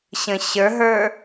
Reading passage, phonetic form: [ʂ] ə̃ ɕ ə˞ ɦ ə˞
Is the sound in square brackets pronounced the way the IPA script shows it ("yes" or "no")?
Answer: no